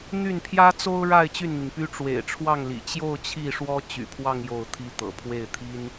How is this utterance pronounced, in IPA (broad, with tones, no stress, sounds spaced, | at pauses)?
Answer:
n̪ y˥˩ n pʰ j ä˥ t͡s o˥ ʊ̯ ɻ a˥˧ ɪ̯ t͡ɕ y˥˩ n n̪ i˩ ŋ p y˥ ʈ͡ʂ w ḛ˨˩ ɪ̯ ʈ͡ʂʰ w ɑ˥˩ ŋ l ḭ˨˩ t͡ɕ j o˥˧ ʊ̯ t͡ɕʰ i˥˩ ʂ w ɔ˥ t͡ɕ y̰˨˩ pʰ w ɑ˥˧ ŋ j o˥˩ ʊ̯ t̪ʰ i˥ t̪ ɤ̰˨˩ pʰ w e˥˩ ɪ̯ t̪ʰ i˥ n